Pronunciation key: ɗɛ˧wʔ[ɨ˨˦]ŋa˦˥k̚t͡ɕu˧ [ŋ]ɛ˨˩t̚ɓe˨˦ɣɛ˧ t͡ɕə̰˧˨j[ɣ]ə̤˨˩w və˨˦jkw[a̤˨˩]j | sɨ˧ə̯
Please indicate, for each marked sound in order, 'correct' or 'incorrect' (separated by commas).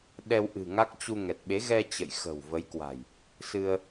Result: incorrect, correct, incorrect, correct